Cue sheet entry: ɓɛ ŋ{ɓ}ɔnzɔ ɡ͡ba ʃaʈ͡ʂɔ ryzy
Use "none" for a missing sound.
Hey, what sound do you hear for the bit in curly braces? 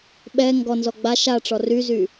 ɡ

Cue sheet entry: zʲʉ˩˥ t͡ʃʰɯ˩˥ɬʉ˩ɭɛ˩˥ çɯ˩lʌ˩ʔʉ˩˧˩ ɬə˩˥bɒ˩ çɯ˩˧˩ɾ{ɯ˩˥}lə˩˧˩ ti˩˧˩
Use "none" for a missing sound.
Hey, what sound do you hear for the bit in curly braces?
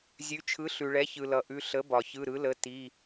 ɯ˩˥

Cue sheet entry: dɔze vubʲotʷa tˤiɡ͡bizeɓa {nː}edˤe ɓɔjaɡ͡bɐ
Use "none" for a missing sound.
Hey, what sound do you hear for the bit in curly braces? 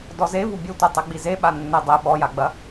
nː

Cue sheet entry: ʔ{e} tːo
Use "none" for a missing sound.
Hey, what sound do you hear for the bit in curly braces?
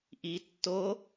i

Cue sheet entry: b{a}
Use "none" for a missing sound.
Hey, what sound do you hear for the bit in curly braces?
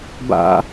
a̰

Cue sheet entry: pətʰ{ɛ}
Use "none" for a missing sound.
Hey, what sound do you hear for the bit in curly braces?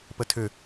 ʏ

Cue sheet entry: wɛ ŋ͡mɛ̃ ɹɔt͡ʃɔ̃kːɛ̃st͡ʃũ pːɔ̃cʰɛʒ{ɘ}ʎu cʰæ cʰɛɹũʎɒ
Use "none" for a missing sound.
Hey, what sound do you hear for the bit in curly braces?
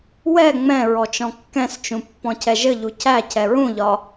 ɘ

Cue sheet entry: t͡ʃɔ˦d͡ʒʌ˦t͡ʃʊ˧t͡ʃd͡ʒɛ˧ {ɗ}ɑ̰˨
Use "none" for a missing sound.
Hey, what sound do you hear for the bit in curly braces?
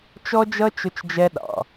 ɗ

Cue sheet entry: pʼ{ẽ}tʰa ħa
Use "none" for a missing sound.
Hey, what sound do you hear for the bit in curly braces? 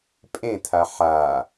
ẽ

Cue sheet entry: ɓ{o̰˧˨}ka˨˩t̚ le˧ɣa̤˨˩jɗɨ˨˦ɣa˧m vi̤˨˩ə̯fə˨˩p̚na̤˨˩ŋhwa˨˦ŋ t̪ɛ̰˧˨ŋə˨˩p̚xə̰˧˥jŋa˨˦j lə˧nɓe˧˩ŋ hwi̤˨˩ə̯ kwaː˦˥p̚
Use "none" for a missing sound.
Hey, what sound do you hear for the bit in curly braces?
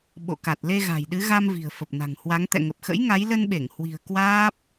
o̰˧˨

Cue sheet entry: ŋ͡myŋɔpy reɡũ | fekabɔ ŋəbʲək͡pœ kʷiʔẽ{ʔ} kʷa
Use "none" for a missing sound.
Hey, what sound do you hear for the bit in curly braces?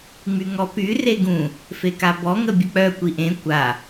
none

